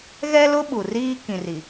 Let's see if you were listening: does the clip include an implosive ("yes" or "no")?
yes